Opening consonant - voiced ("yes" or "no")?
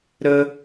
yes